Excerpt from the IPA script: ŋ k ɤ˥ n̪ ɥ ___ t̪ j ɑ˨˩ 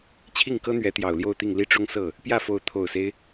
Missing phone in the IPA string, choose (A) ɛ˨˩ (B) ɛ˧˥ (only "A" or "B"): B